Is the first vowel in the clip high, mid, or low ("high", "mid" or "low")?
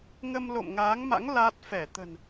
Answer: mid